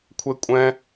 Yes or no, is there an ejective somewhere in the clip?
yes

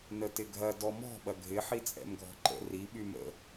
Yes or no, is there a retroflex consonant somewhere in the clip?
no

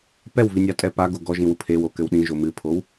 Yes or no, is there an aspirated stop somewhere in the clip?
yes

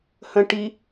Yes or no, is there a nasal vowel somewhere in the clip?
yes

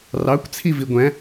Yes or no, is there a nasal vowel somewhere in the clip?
yes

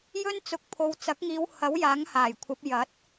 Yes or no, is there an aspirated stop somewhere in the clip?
yes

